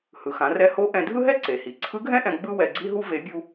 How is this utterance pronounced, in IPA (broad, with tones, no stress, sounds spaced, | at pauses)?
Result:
h ɯ˩ x ã˩˧ r ɛ˧˥ h o˧˥ ʔ ɛ̃˧ dʱ ɯ˥ ɦ ɛ˥ ǀ e˩ h i˩ ǀʰ ɯ˧˥ ɡʱ ɛ̃˥ ʔ ɛ̃˧ ɡ͡b ɯ˥ w ɛ˧ ɡ͡ǀ i˥ ɦ u˥ v e˧˥ bʲ u˥